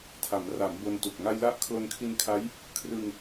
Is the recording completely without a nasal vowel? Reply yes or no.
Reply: yes